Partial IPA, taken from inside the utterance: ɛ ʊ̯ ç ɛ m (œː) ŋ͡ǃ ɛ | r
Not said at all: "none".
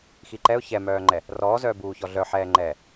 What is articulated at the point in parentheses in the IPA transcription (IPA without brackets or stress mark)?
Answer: œː